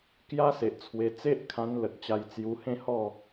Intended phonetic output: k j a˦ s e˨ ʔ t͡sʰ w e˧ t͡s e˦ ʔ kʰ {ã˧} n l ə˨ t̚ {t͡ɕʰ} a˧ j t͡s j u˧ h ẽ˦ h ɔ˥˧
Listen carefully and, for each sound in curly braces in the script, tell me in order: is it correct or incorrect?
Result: correct, incorrect: t͡ɕ

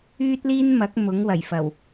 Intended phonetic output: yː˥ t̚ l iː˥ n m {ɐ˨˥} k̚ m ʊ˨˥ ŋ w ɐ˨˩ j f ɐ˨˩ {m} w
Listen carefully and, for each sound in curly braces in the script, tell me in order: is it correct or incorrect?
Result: correct, incorrect: none

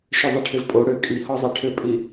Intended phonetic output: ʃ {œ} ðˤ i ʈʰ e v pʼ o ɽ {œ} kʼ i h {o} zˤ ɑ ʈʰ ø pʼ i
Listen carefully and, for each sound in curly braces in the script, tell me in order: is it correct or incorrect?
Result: correct, incorrect: ø, incorrect: ɔ

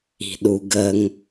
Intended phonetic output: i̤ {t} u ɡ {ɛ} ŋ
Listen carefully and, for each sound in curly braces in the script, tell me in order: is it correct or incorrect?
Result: incorrect: ɗ, incorrect: ə

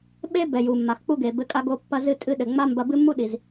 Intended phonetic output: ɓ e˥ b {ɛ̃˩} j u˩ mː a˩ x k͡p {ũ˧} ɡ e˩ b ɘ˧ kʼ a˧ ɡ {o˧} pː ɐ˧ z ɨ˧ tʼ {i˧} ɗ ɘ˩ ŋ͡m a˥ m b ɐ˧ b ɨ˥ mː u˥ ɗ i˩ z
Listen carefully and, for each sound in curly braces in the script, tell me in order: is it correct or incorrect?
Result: incorrect: ɛ˩, incorrect: u˧, correct, incorrect: ɨ˧

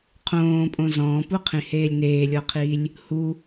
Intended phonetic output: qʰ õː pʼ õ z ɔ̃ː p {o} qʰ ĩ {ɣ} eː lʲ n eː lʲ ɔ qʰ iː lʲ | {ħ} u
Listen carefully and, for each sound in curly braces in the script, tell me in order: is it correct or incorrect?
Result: incorrect: u, incorrect: h, incorrect: h

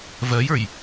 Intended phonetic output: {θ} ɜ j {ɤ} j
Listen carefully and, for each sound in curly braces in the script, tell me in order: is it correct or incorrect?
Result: incorrect: v, incorrect: ə˞

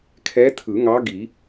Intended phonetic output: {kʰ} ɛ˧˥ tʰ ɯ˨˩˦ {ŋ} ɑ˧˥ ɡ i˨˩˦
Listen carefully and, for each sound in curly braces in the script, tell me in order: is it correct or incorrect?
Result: correct, correct

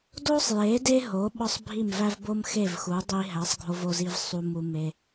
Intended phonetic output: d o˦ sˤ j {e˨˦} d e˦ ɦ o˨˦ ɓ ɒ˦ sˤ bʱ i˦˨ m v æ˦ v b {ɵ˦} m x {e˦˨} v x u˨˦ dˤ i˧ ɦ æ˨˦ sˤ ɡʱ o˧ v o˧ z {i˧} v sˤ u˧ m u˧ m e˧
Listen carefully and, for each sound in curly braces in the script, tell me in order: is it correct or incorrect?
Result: correct, incorrect: o˦, correct, correct

